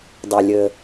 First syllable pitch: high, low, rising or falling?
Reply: low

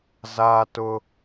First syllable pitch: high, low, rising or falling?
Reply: high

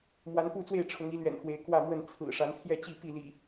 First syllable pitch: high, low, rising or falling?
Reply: rising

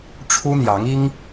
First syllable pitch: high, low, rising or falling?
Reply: high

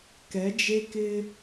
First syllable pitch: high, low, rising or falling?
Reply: rising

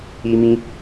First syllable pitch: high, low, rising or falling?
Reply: high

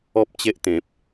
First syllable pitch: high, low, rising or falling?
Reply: high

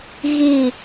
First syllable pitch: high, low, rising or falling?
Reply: falling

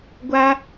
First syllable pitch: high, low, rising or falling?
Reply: high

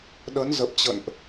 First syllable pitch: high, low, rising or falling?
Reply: rising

